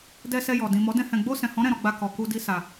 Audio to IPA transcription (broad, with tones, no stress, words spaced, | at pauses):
dɛ˧ sɛ˧jɔ˨ dĩ˨ mɔ˨˦dɛ̃˧ hɛ̃˨ɡ͡bo˧sɛ̃˨hɔ̃˨˦ ɾɛ̃˧ɾɔ˧ɡ͡ba˧ kɔ˨ku˧di˦ sa˧